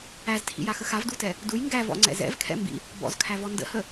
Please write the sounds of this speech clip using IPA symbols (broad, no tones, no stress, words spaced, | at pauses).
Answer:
æztʰḭjaxə xavdutɛ | duj ŋɡævɔ̰ŋ͡ǀɛ̰ zɛ̰vkʰɛ̰ mbḭ | bɔ̰zkʰævɔ ndə̰hə